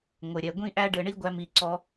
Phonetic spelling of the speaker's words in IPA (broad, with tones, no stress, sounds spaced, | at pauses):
ŋʷ ɘ˨ ɾʲ ɛ˨ ɡʷ ĩ˦ ʔ æ˦ ɖ ɘ˧ ɳ i˦ ɡʷ æ˦ m i˧ ǀ ɔ˧